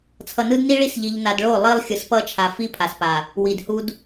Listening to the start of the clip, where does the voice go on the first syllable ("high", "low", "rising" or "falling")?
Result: low